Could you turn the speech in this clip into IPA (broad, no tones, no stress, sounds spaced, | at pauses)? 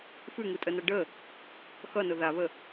f ʉ ŋ u tʼ ə n ʌ ɖ ə | x ʌ n ʊ ð a β ə